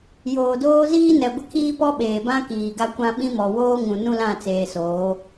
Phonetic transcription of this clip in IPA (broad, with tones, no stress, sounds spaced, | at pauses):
j oː˨ d oː˦ z iː˦ n ɛ˨ ɡʷ ɪ˦ kʰ iː˦ p ɔ˦ ɓ eː˨ b ã˦ k iː˨ ɡ a˦ kʷ ã˦ ɓ ĩ˦ m ɔ˨ w oː˦ ŋ ũ˨ n ũ˦ l ã˦˨ t͡s eː˨ s oː˨˦